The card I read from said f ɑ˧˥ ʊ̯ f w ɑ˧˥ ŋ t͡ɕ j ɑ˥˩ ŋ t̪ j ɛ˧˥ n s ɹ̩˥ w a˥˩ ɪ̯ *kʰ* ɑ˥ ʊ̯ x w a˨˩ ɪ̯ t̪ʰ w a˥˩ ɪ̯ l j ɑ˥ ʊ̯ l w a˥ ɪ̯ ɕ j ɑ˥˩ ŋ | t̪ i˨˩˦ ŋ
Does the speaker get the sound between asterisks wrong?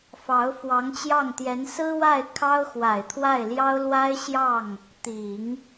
no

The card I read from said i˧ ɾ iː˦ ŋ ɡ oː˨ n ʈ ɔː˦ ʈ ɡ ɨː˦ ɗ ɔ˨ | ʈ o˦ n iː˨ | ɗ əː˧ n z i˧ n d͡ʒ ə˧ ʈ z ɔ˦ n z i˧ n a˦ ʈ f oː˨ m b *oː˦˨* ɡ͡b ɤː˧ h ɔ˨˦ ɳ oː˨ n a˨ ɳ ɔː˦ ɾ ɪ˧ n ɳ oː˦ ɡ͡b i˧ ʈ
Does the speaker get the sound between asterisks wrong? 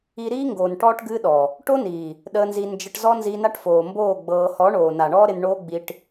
no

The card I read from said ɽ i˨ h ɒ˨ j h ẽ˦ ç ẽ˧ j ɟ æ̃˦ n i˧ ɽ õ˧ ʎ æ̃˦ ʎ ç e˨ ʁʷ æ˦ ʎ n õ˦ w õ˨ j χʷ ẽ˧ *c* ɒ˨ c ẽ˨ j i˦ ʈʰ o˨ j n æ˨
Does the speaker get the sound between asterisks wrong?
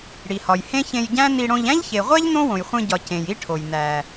yes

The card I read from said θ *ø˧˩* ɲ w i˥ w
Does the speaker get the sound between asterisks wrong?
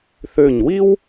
no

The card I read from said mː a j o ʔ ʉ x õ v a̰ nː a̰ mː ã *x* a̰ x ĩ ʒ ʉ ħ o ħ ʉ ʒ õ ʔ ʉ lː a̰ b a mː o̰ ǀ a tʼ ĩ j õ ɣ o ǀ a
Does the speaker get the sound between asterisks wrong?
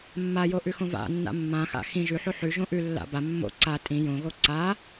no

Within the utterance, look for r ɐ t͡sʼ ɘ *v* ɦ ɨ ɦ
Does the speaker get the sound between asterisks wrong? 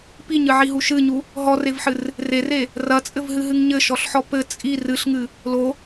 no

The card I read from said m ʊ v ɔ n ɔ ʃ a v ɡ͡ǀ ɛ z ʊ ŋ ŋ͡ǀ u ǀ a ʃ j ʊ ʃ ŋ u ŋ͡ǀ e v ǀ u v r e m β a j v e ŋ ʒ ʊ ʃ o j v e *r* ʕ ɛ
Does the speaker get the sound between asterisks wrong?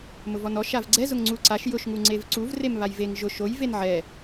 yes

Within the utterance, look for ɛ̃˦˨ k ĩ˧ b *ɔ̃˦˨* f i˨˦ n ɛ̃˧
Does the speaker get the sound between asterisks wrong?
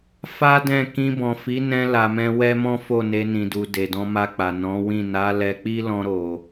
yes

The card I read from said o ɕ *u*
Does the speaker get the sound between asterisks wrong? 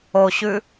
yes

